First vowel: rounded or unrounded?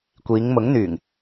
unrounded